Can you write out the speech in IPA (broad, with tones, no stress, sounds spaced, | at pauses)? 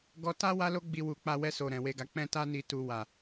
ɡ ɔ˨ t a˧ w a˦ l o˦ ɡ͡b i˧ w u˨ k͡p a˧ w ɛ˧ s o˨ ɾ ɛ̃˨ w e˨ ɡ a˨ k͡p ɛ̃˧ t a˧ n i˨ t u˨ w a˨